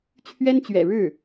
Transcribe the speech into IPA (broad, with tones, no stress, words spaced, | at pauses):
t͡ɕʰɥɛ˥nt͡ɕɥɛ̰˨˩ɻɻ̩˥˩